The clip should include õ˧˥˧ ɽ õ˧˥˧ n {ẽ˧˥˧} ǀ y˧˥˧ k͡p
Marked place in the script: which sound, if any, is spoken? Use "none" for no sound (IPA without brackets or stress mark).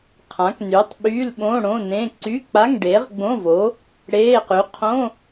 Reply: ẽ˧˥˧